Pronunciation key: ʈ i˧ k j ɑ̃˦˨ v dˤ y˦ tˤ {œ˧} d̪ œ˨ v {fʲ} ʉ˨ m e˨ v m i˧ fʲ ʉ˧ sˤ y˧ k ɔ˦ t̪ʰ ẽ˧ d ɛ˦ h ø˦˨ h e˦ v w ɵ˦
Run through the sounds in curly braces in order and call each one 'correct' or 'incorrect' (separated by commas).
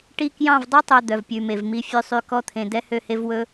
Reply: incorrect, incorrect